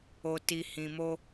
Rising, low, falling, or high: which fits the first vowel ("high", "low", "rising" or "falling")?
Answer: low